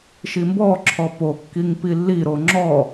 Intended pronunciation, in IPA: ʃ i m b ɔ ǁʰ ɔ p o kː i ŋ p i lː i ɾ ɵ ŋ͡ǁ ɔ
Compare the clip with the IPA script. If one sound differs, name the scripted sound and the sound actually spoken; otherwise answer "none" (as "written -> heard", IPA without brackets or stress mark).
ɵ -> o